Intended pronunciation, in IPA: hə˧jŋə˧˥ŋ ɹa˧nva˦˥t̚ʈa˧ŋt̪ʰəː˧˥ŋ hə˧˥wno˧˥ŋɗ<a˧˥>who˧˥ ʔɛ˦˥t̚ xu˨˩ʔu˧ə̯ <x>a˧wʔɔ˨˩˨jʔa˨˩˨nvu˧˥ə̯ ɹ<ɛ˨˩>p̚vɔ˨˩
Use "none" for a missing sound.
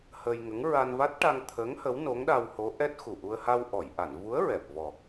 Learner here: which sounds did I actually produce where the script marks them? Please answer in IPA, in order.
a˧, h, ɛ˨˩

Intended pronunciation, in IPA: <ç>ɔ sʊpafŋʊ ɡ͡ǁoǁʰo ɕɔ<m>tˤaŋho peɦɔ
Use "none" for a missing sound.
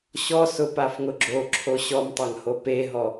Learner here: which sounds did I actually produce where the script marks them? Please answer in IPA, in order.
ɕ, m

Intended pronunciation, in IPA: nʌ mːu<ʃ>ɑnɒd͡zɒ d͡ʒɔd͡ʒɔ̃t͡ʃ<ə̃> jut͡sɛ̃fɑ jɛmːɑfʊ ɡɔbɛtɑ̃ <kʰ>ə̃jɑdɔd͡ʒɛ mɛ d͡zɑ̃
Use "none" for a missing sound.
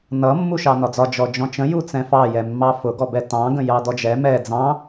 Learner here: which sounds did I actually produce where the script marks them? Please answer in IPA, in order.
ʃ, ə̃, ɡ

